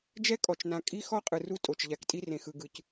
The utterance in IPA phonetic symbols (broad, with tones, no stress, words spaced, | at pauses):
d͡ʒɛ˦kʼɔ˨t͡ʃnã˨ kʼi˦ xɔ˦qʼɯ˨ru˦ tʼo˨t͡ʃʎa˨˦ktʼi˦ rẽ˨xɯ˨ɡɯ˨c